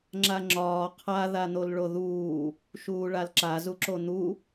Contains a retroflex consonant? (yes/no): yes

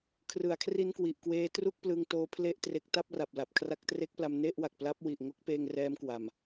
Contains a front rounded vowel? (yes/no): no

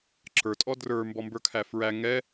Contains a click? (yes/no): yes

